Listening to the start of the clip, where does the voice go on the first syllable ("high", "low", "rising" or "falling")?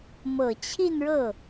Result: low